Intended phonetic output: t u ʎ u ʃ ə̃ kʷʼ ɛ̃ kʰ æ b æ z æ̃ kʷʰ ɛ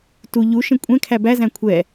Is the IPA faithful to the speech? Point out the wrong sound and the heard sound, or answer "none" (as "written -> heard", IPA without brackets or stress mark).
none